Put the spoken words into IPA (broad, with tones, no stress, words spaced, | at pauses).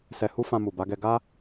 sɛ˧hu˦fã˧ mu˨ba˨˦ɡɛ˧ ɡa˦